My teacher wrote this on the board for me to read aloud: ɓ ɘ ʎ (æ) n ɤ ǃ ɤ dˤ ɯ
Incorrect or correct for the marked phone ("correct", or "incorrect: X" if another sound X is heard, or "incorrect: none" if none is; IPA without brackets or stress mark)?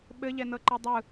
incorrect: ɛ